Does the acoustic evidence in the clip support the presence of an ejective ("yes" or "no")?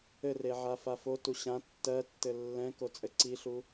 yes